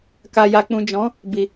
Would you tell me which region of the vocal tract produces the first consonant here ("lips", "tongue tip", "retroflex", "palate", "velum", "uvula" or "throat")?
velum